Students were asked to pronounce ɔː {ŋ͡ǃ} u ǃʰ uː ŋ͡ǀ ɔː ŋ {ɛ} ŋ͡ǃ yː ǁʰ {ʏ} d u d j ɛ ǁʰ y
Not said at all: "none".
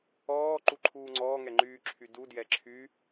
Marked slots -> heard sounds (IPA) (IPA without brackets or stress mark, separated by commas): ǃ, ɛ, y